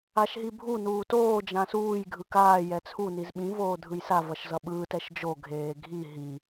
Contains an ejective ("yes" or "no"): no